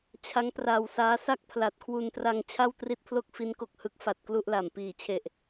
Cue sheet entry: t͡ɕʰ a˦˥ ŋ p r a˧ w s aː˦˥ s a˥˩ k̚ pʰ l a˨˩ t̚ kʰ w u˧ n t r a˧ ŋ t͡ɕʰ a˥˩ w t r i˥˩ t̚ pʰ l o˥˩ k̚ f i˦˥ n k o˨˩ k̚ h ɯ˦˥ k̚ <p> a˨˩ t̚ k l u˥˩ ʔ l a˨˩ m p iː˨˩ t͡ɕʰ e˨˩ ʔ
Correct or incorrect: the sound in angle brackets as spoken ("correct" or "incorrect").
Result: incorrect